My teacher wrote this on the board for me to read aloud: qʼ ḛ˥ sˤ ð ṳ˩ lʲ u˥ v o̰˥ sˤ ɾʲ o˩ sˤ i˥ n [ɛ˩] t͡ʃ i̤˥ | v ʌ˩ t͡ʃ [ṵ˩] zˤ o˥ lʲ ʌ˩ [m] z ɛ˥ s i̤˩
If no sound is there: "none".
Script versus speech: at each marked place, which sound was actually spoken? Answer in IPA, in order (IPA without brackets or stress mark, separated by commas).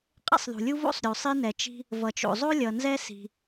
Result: ɛ˩, o̰˩, n